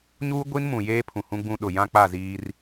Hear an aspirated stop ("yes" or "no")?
yes